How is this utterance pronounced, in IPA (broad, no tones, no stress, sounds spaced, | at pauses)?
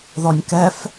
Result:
ð ɔ nʲ k ɛ f